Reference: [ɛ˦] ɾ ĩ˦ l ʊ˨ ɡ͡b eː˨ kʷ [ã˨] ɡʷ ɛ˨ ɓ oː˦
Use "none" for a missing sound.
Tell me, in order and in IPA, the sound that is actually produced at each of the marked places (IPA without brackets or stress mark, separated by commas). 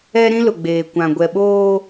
ɛ˦, ã˨